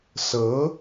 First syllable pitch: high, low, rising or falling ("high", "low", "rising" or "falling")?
rising